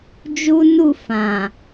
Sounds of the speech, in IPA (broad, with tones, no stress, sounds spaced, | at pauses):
d͡ʒ u˦ n u˦˨ f ã˨